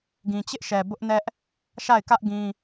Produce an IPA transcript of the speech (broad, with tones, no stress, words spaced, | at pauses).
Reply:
ɡĩ˨t͡ɕɪ˦ʔʃɛ˨ bʊ˦ʔnɛ˦ʔ | ʃa˦˨ɪ̯kä˦ʔ ɡĩ˦